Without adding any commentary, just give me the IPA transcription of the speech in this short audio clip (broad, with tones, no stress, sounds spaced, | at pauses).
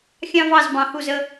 xʲ ɑ̃˦ v ɑ˦˨ z b ɑ̃˨ h u˦˨ z ə˦